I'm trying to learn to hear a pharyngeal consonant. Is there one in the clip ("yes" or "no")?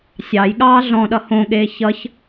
no